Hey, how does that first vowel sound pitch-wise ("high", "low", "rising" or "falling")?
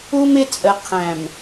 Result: high